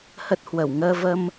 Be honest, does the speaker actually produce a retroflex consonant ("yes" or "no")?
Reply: no